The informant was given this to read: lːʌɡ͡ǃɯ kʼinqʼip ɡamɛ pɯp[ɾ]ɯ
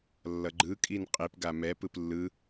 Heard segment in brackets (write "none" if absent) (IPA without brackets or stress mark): lː